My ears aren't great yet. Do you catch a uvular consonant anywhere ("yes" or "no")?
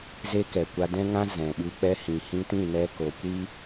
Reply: no